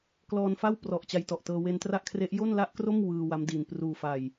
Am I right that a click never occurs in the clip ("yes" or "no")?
yes